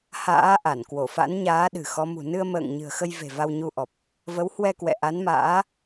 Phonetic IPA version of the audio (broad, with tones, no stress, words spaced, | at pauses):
ha̰ː˧˥ʔa˧˩n kwo˧˩fa̰˧˥nɲaː˨˦ ɗɨ̤˨˩xɔ˨˦mṳ˨˩ nɨ˧ə̯mə̰ː˧˨ŋ ɲɨ̤˨˩ə̯xə˧j ve̤˨˩ va˧wɲu˧ʔɔ˨˩p̚ | və˨˦whwɛ˧kwɛ̰˧˨ ʔa˨˦nma̰ː˧˥